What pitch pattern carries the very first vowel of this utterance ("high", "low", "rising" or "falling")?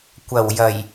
low